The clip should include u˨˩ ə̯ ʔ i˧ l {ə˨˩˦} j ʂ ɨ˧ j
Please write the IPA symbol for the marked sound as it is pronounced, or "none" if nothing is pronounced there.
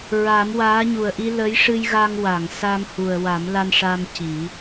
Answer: ə˧˥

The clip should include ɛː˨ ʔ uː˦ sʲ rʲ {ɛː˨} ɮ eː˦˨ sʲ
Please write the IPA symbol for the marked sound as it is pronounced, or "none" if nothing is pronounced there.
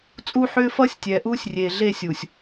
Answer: eː˨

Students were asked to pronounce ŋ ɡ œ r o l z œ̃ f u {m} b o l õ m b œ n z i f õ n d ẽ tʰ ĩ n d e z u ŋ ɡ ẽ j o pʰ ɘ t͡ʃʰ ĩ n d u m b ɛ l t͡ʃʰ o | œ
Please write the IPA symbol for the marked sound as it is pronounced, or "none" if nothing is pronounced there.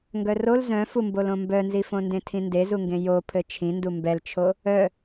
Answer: m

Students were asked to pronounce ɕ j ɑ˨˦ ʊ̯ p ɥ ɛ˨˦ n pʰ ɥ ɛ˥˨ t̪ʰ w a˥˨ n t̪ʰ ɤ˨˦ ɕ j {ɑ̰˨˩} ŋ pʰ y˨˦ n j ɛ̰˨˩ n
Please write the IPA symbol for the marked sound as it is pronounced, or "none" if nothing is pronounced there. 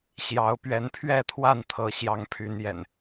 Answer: ɑ˨˦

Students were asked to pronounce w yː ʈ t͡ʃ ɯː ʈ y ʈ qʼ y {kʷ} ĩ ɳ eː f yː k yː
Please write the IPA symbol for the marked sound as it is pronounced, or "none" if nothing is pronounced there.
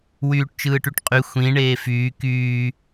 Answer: xʷ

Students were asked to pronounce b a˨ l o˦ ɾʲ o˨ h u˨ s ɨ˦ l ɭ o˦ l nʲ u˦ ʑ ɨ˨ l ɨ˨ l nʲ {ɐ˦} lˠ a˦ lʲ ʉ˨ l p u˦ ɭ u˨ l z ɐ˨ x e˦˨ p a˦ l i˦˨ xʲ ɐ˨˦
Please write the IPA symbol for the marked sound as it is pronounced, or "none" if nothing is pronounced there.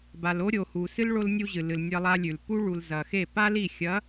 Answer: ɐ˦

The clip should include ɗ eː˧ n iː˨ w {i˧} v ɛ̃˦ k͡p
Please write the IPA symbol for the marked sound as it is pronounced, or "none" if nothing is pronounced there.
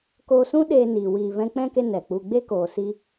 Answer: iː˧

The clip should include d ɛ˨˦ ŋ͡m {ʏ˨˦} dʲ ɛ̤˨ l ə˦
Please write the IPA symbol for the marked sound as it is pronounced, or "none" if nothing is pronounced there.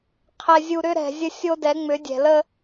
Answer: ʏ˨˦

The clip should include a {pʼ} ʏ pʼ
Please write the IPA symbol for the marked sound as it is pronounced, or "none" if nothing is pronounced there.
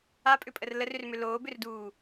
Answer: pʼ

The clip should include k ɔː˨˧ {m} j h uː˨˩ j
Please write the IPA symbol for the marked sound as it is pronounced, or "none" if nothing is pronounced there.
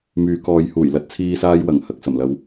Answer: none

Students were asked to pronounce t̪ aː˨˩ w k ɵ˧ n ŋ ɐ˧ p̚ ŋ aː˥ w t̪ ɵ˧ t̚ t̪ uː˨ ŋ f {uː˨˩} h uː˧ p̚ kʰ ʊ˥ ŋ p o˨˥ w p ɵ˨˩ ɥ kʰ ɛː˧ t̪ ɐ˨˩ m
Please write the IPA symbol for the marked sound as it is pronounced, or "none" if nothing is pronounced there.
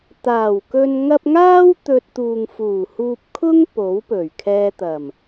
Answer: uː˨˩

